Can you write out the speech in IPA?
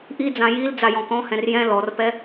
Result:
ʔ i d͡z ã j i l d͡z a j ɔ̃ k ɔ̃ h ɛ̃ r j ɛ̃ l ɔ r p ɛ

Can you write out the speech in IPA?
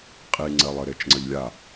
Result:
qʼ i ŋ͡ǀ ɜ lˠ ə ɾ e t͡ʃ ŋ͡ǀ ə ʎ lʲ a

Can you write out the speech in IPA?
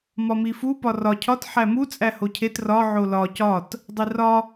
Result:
m ɒ m i f u p ɒ r ɒ cʰ ɒ t ħ æ m u t͡sʼ æ h o cʰ e t r ɒ ʕ o l ɒ c ɒ t | dˤ i r ɒ

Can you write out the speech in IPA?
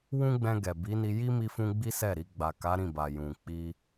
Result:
w ũ˦ ɡ͡b ɛ̃˧ ɡ ɛ˨ b i˨˦ n i˧ j i˦ m i˧ f ũ˧ ɡ͡b i˦ s ɛ˦˨ ɾ i˧ ɡ͡b a˨ k a˨˦ ɾ ĩ˦˨ b a˨ j ũ˨ k͡p i˧

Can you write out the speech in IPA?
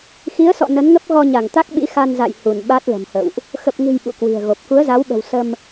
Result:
x i˨˦ ə̯ s ɔ̰˧˨ n ə˨˦ n ŋ ə˦˥ p̚ ɣ ɔ˧ ɲ a˧˩ ŋ t̪ a˦˥ k̚ ɓ ḭ˧˥ x a˧ n z a̰˧˨ j h u˧˩ n ɓ a˦˥ t̚ l ə̤˨˩ m h ə̰˧˨ w ʔ | x ə˨˩ p̚ ŋ ɨ̤˨˩ j ɓ ṵ˧˨ k w i̤˨˩ ə̯ ɣ o˨˩ p̚ k u˨˦ ə̯ z a˨˦ w ɓ ə̤˨˩ w s ə˧ m

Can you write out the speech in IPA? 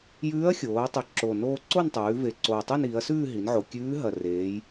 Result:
j ʉː˧˥ ɐ̯ xʲ oː˩˧ ɐ̯ tˤ ʉ˨˩ ǁ o˨˩ n oː˧ ǀ o˥˧ n tˤ ʉː˩˧ v e˨˩ ǀ oː˨˩ tˤ ʉ˥˧ n iː˩˧ ɐ̯ s ʉː˥˧ ɦ i˩˧ n ʕ o˨˩ kʲ ʉː˧˥ ɦ ɐ˨˩ r eː˩˧ j

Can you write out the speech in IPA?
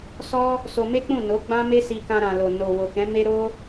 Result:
s ɔ˦ | s o˧ m e˦ k͡p ũ˦˨ n o˨˦ ɡ͡b ã˦ m e˦ s i˧ k ã˧ ɾ ã˨ l o˨ n o˨ w o˨ k ɛ̃˨˦ m e˦ ɾ o˦

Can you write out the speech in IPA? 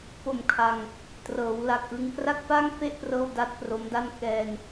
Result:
p o˨˩ m kʰ a˧ ŋ | t r ɤː˩˦ w l a˨˩ k̚ ʔ ɯ˧ ŋ k r a˥˩ k̚ p a˥˩ ŋ f e˥˩ ʔ p r ɤː˥˩ w d a˦˥ t̚ p r o˦˥ m d a˥˩ n k ɛː˧ n

